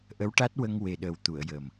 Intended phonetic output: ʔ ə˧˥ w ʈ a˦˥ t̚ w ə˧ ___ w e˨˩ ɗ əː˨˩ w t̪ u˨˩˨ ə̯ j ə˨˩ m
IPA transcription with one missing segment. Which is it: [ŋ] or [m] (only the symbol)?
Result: ŋ